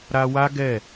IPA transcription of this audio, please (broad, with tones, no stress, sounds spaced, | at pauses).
ɾ a˧ w a˦ ɡ ɛ˦˨